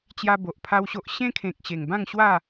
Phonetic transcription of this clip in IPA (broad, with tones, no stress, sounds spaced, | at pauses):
t͡ɕ j a˦ b o˨ ʔ pʰ a˦ w ɕ o˦ ʔ ɕ ẽ˦ kʰ ẽ˨ k̚ ɕ e˨˩ ŋ b ã˥˧ ŋ ɕ w a˥˧